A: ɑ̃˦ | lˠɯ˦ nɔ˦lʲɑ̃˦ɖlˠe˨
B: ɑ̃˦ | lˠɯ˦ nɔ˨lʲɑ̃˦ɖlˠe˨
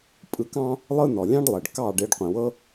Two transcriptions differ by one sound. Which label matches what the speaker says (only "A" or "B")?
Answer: B